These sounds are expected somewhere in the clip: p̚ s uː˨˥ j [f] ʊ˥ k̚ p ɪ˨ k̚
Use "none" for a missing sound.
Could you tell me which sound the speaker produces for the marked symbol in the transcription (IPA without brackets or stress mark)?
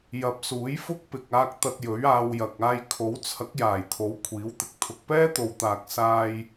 f